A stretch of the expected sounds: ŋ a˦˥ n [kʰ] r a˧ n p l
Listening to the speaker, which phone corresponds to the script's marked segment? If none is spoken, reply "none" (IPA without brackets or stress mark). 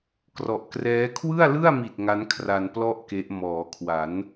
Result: kʰ